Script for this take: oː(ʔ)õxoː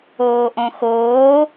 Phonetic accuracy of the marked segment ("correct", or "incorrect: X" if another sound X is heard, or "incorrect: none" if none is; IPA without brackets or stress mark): correct